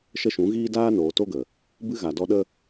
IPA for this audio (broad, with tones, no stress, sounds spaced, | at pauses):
ʃ ə˦ ʃ ũ˨˦ ɣ iː˦ d aː˧ n oː˨ t o˦ ɡ ə˨ | b ɨ˦ ɣ a˨ d ɔ˧ ɗ ə˦